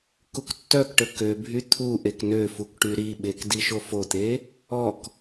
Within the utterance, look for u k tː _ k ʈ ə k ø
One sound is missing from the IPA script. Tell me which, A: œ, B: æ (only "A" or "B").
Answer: A